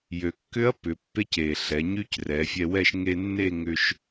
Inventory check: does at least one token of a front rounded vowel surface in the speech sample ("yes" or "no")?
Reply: yes